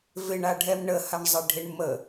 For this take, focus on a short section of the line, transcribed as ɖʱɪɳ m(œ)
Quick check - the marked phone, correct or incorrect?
incorrect